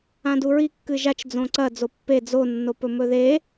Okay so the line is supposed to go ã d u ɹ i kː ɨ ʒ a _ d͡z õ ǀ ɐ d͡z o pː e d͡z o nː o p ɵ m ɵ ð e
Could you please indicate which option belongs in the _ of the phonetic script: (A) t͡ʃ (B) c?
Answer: A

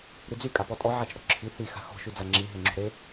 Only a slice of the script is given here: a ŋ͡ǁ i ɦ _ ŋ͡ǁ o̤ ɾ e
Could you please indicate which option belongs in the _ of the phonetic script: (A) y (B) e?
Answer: B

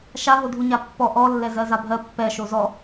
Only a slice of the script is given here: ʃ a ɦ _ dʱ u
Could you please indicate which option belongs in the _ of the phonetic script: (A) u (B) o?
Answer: B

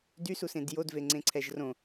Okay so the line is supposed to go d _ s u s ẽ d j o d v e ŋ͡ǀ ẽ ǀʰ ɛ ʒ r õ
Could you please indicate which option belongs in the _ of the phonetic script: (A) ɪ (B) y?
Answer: B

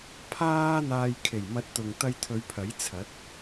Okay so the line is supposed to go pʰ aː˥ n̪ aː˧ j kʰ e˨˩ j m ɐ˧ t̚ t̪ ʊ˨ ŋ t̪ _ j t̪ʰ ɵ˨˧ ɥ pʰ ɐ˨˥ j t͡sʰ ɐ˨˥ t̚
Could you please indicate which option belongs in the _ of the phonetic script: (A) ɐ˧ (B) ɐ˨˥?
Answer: A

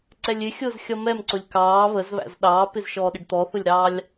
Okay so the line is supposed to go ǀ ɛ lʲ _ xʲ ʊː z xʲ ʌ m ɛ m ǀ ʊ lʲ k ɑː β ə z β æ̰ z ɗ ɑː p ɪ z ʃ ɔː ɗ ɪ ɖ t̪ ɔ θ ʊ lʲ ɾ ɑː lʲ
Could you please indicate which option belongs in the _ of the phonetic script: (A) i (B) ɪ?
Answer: B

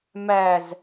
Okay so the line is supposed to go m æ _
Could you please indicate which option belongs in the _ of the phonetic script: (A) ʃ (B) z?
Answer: B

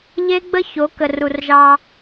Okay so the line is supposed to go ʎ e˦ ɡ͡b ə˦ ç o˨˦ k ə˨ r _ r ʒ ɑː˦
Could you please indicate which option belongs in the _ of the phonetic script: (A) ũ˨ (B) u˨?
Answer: B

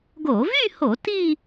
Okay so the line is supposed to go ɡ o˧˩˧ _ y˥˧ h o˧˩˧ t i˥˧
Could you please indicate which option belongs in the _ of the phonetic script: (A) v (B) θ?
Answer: A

